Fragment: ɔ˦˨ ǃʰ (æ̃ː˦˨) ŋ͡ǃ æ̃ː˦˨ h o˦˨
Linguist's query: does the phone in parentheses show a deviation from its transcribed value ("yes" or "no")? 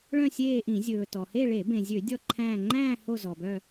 no